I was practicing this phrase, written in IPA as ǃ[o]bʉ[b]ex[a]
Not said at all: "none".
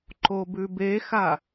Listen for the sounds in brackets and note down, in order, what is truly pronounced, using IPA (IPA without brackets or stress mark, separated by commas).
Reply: o, b, a